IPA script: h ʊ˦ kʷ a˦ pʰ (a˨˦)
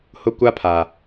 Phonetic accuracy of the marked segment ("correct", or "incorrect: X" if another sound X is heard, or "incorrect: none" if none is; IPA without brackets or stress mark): incorrect: a˨